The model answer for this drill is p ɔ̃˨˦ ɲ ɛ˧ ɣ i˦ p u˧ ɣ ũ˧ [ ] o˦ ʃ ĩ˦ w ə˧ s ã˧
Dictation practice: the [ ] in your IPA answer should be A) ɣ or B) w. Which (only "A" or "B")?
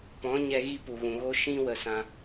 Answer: A